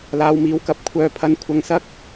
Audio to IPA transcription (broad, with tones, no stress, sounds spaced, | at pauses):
l aː˨˧ w m iː˨˥ w k ɐ˨˥ p̚ kʷʰ œː˨ pʰ ɐ˨˥ n kʷʰ ɐ˧ ŋ s ɐ˥ k̚